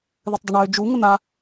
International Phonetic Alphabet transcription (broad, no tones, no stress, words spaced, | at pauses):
ðɨtˤdˤəɳøː d͡ʒu ŋən̪a